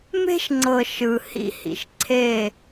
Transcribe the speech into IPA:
m e̤˦ ʃ ŋ͡ǀ ɤ˨ ʃ ɯ˨ h ḭ˦ h ḭ˨ ʃ ǀʰ e˦˨

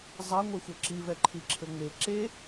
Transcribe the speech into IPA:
zˤ ɐ ŋʷ e xʷ œ ǁ i v ɛ ǃʰ i ǁʰ ɘ ŋ͡m e ǁ e

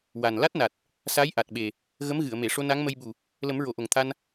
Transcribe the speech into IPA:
w a˨˩ n l a˦˥ t̚ n a˨˩ t̚ | s a˧˥ j ʔ a˨˩ t̚ ɓ e˨˩ | ɣ ə˧˥ m ɣ ɨ˨˩˨ ə̯ m e˨˩˨ ʂ o˧ n a˧˥ ŋ m ə˧ j ɓ u˨˩ | l ə˨˩˦ m ɹ o˨˩˨ ʔ o˨˩ ŋ t̪ʰ a˧ n

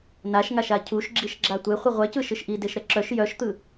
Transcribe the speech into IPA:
n a ʃ ŋ a ʃ a cʰ u ʃ ɡ͡ǁ i ʃ ɡ͡ǁ a tʷ e χʷ ɨ ʁʷ ɛ c ɯ ʃ ɨ ʃ ʔ i d e ʃ ɾ ɛ ǁ œ ʃ j œ ʃ t̪ ɯ

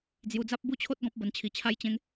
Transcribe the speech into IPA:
d͡z j u˧ d͡z a˦ p̚ b u˥˧ t͡ɕʰ o˦ t̚ ɡ ɔ̃˦ p̚ b ə˧ n t͡ɕʰ i˧ t͡ɕʰ a˦ j t͡ɕ ẽ˧ ŋ

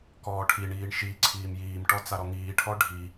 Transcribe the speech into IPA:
k ɔː ʈʰ i ɳ iː ɳ ʃ i ǀʰ iː m j iː m ʈ ɔ t͡s a ɾ ɔ ŋ iː ʈʰ ɔ ɖʱ i

